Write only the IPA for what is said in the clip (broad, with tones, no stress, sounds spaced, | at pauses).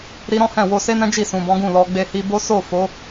ɾ i˧ ɾ ɔ̃˦ h ɛ̃˦˨ w o˧ s e˦ n ɛ̃˦ d͡ʒ i˦˨ s ũ˨ b ɔ̃˨˦ ɡ ũ˦˨ l ɔ˧ ɡ͡b e˧ h i˧ b o˦ s o˦˨ f o˨˦